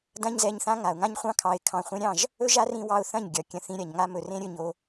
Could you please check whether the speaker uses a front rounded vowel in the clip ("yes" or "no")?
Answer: no